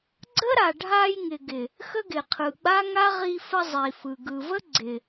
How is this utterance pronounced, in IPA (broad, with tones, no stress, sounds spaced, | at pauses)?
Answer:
ɡ͡ǀ ə˦ ɾ a˨ ɖʱ a˧ j ŋ ɪ˨ ɡ ɪ˨ | x ə˦ ɡ ɪ˨ qʰ ɯ˨ ɡ͡b a˦ ŋ a˦ ʁ i˧ f ə˧ zˤ i˨ f ɯ˨ ɡ ɯ˨ v ə˦ ɡ͡ǀ ɪ˨